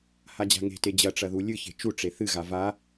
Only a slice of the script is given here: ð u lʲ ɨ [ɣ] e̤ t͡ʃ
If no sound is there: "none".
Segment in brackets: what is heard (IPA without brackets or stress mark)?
ç